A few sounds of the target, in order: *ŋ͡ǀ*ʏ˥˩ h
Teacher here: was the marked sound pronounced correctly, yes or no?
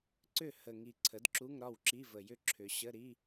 no